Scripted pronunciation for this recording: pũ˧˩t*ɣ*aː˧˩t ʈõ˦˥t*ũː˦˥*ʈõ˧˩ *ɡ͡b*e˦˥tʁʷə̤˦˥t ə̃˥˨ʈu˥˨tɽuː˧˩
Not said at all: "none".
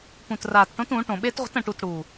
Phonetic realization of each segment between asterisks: r, ũː˩˥, ɓ

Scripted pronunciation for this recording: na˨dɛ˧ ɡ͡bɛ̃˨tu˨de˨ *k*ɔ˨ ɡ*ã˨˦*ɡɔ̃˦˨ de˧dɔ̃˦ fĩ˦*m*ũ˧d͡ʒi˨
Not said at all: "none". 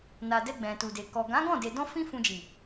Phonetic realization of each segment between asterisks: k, ã˨˦, f

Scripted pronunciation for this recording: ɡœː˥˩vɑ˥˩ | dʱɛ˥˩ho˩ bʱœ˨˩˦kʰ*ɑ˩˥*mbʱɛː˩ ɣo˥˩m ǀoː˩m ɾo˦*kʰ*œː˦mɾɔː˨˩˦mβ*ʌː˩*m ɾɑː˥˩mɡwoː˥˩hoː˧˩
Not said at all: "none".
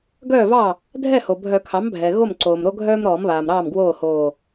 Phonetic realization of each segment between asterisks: ɑ˩˥, ɡʱ, aː˩

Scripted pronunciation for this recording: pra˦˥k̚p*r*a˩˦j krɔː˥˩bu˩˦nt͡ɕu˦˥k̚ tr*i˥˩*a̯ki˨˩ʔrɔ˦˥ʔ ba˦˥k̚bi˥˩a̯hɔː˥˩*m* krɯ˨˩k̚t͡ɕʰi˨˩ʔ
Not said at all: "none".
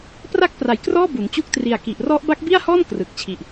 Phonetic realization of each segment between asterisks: r, i˨˩, n

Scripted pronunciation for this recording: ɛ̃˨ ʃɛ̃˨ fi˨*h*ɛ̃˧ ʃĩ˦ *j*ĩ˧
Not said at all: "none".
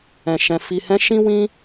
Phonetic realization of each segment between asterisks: h, w

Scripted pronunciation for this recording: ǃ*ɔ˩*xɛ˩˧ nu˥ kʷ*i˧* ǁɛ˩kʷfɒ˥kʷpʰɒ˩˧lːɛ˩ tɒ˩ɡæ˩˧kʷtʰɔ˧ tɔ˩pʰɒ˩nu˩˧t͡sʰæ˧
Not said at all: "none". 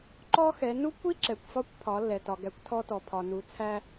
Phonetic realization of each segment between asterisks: ɔ˥, i˥

